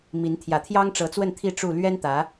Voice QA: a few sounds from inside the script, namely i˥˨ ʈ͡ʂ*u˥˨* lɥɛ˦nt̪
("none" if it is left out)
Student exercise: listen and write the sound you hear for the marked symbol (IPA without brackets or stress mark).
u˥˨